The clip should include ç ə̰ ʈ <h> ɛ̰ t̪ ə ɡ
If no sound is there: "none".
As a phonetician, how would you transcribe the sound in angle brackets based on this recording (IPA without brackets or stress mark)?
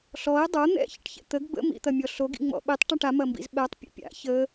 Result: ç